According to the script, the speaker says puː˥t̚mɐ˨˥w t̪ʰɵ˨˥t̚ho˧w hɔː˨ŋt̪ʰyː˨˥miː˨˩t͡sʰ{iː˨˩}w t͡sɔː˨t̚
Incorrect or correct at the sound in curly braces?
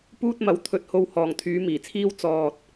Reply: incorrect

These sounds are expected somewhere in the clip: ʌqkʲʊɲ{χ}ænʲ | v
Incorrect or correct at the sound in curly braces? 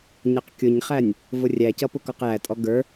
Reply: correct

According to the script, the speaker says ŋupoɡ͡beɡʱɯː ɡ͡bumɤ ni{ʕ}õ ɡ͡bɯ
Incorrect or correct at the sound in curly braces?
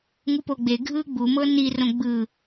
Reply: incorrect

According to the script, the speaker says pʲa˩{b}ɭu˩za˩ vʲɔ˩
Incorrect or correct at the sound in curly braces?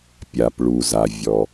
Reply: incorrect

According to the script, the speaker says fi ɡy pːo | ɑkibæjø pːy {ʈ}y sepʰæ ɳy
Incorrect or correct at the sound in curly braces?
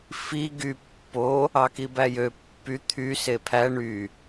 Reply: incorrect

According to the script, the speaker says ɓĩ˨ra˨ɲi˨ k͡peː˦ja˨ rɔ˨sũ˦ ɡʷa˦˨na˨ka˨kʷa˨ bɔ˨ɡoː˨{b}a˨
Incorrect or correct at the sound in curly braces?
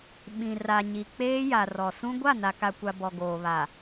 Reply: incorrect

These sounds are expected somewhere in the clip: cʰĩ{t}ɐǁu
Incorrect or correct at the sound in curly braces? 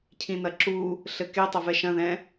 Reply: incorrect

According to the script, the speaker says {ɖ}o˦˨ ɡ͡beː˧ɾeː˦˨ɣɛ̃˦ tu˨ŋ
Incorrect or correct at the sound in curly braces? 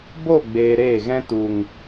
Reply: incorrect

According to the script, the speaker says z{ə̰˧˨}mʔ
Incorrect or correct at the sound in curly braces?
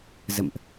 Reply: correct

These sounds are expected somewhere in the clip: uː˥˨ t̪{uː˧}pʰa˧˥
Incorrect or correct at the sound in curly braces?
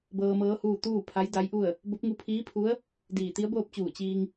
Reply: incorrect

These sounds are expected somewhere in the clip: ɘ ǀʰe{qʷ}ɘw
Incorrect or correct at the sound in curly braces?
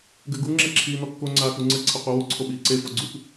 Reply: correct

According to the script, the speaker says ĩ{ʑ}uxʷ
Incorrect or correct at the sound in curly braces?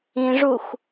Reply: incorrect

